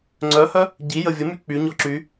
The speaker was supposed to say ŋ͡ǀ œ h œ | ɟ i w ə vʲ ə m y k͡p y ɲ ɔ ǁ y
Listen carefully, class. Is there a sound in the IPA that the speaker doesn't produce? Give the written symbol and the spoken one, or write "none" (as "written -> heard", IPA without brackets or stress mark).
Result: w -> j